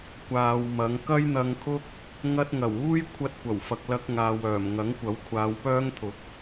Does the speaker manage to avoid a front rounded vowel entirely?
no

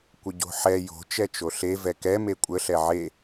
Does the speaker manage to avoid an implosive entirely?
yes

